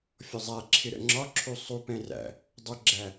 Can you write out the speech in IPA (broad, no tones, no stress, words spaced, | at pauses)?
fʲɔzˤæǁʰɪ ɾə̰ŋ͡ǁɒǁʰu sˤupɛ̃ ræ̰ | dˤʊɡ͡ǁæ